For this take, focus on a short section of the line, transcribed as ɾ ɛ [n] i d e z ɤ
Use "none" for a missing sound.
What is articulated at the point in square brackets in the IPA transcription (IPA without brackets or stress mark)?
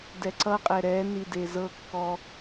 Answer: n